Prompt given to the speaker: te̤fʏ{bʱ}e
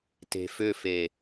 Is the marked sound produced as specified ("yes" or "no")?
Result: no